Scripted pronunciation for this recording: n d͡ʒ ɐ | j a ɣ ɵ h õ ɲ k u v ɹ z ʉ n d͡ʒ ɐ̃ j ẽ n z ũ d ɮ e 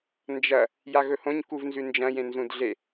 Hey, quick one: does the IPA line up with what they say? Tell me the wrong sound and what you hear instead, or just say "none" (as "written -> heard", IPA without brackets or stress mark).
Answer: ɹ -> n